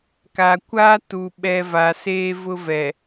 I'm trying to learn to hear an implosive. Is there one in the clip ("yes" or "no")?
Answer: yes